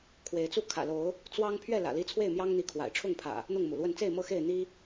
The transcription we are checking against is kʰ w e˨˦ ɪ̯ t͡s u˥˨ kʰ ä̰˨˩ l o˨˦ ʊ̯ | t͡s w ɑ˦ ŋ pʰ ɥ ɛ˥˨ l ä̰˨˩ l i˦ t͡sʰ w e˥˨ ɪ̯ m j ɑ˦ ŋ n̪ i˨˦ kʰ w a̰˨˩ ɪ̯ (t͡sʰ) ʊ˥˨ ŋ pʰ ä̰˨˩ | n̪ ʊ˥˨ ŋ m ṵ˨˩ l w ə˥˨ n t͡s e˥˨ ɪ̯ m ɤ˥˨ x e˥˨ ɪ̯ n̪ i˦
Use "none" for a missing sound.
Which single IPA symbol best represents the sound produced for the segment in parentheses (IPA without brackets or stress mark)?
ʈ͡ʂʰ